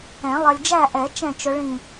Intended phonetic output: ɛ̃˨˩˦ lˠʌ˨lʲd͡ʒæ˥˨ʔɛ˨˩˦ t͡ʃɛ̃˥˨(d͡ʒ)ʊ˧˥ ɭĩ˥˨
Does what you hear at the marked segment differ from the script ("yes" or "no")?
yes